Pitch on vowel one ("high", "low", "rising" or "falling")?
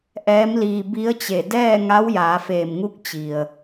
rising